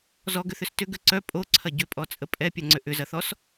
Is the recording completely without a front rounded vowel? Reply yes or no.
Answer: no